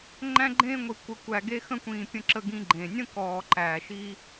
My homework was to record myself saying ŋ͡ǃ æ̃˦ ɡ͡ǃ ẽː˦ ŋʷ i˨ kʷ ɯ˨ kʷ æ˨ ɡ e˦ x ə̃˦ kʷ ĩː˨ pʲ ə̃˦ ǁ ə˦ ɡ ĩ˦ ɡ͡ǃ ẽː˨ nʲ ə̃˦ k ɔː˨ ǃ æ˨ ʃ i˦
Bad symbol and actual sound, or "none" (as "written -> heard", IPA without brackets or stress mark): ɯ˨ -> ə˨